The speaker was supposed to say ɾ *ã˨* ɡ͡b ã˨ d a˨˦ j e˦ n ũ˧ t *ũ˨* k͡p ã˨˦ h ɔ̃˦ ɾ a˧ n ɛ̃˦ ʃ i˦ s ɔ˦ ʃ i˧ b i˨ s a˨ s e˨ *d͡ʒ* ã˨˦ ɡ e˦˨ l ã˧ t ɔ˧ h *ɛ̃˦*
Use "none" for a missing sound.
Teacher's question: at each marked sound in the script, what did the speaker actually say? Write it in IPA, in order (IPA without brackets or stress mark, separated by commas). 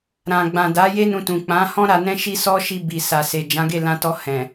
ã˨, ũ˨, d͡ʒ, ɛ̃˨